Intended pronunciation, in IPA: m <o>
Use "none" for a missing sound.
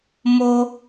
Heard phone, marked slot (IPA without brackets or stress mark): o